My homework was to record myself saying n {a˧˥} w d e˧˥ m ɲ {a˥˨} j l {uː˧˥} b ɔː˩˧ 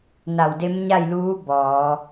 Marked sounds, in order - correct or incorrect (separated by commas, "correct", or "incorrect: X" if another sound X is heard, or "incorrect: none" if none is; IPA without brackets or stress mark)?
incorrect: a˧˩, correct, correct